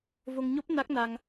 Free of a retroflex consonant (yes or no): yes